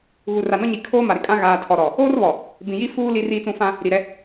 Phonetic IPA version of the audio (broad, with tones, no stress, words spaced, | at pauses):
ɣu˨ra˨nɔ˦ɲi˨ kʰoː˦ ma˨ɾɪ˨kʼã˦ ɣaː˨ tʰɔ˨ɾɔ˨ | oː˦rβɔ˨ | bĩ˨ji˦ fuː˦ li˦riː˦t͡sũ˦ fã˦ | ɾi˨ɾɛ˦